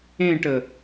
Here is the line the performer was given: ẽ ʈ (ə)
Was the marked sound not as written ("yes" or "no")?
no